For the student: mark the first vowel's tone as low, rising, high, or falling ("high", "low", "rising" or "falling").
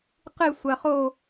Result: falling